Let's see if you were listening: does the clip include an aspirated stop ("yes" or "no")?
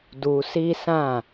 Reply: no